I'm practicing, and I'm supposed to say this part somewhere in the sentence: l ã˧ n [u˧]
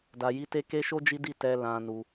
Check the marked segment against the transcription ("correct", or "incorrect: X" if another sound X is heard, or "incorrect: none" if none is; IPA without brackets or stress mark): correct